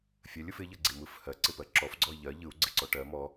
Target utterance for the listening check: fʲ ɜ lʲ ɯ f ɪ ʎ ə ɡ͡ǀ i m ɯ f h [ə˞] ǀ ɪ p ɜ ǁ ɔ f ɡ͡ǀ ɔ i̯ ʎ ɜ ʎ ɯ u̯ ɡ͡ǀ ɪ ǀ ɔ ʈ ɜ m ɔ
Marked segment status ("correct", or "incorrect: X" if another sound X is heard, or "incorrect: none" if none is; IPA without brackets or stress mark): incorrect: ɜ